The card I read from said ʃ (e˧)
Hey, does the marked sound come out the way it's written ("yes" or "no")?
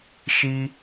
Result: no